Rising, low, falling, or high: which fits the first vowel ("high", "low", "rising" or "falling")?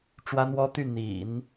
high